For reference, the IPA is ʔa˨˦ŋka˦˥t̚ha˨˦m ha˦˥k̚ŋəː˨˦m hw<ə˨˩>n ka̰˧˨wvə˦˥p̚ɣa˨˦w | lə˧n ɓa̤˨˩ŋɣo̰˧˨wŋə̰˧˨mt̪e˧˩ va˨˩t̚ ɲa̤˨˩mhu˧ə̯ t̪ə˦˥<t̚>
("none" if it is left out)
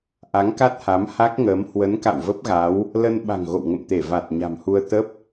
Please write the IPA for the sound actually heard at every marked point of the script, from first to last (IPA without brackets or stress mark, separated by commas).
ə˨˦, p̚